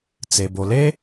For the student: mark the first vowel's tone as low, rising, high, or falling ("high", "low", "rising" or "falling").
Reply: low